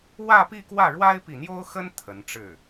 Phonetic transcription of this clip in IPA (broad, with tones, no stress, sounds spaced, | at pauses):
w ä˥˧ p i˥˧ k w ä˥˩ ɻ w a˥ ɪ̯ p i˨ n̪ j o˥ ʊ̯ x ə˥ n t̪ʰ ə˧˥ n ʈ͡ʂ ɻ̩˥˩